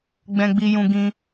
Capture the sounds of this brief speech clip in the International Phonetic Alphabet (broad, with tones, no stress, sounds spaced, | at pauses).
ɡ͡b ɛ̃˧ ɡ͡b i˧ j ũ˧ ɡ ĩ˧